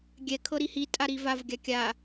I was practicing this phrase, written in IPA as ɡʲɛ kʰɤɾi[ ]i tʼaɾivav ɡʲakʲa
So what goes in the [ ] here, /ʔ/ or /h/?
h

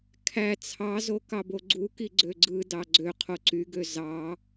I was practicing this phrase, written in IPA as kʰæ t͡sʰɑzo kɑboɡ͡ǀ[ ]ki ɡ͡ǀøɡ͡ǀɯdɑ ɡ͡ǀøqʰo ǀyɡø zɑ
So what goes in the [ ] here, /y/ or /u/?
u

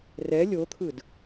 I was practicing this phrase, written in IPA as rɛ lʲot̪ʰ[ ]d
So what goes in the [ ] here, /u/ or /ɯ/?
ɯ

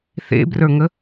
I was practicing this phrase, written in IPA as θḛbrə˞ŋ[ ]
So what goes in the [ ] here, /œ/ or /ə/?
ə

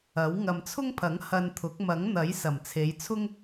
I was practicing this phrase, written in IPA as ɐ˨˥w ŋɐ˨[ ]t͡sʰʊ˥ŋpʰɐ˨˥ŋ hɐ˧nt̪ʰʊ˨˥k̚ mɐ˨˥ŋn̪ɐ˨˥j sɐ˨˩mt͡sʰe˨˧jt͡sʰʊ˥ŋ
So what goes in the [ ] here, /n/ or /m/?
m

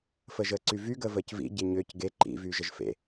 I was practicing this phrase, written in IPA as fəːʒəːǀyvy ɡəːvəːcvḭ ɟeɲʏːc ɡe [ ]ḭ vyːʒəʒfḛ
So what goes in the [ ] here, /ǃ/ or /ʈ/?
ǃ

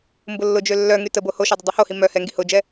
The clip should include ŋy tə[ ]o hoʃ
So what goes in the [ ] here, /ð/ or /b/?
b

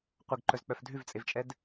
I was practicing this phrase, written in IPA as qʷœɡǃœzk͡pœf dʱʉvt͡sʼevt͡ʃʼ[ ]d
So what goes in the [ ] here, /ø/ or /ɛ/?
ɛ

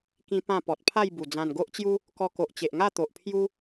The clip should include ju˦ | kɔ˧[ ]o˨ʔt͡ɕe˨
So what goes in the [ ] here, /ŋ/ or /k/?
k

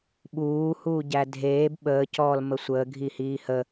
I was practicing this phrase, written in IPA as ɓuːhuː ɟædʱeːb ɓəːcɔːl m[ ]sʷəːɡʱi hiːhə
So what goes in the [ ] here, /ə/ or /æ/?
ə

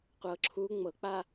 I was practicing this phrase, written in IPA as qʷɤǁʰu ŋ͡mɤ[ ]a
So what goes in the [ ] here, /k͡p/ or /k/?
k͡p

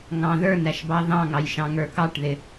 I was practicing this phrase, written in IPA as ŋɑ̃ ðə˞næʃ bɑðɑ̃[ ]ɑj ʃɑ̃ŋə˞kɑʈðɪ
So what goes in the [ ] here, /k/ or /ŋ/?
ŋ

